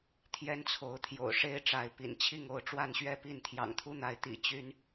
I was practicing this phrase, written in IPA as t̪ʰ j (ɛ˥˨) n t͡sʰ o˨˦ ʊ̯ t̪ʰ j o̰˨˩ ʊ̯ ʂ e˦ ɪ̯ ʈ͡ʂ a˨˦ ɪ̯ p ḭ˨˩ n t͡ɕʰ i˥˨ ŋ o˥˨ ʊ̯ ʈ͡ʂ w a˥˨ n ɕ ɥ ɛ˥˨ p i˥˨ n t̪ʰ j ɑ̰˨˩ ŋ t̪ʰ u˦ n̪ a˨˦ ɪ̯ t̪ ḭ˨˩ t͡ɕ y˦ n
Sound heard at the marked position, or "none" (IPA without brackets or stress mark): ɛ˦